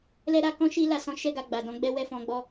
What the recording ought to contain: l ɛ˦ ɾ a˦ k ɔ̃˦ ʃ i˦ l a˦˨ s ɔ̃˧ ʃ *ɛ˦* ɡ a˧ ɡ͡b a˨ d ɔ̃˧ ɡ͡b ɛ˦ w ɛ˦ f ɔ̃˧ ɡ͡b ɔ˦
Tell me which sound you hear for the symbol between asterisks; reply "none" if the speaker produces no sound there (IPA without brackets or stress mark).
ɛ˦